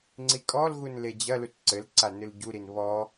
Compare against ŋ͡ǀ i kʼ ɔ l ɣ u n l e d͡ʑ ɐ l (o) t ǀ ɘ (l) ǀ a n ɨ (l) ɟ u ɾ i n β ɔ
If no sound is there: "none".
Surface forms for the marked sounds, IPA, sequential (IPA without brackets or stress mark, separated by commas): u, l, l